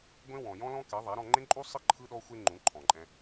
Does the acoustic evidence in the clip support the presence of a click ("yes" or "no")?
yes